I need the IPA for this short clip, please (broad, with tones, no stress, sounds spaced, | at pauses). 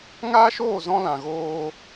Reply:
ŋ aː˦ ʃ oː˦˨ z ɔ̃˧ l ã˨ ɣ oː˧